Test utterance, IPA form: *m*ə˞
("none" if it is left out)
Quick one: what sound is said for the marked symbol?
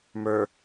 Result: m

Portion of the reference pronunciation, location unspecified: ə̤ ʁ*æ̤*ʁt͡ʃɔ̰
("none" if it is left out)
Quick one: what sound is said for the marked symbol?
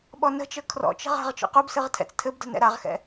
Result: a̤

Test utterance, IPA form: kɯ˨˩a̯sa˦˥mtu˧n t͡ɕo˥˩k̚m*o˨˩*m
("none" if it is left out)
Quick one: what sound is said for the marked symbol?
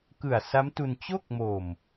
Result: o˨˩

